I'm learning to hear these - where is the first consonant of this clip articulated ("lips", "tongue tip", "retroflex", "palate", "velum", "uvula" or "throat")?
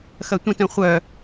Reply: velum